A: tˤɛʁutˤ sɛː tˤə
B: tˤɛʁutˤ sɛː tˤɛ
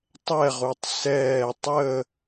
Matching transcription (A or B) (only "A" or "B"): A